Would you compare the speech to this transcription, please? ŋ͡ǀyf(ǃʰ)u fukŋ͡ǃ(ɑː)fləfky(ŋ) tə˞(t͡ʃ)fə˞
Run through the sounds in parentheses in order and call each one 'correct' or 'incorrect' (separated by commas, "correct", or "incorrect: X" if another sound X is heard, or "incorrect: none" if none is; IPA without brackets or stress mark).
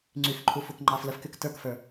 correct, correct, incorrect: k, incorrect: k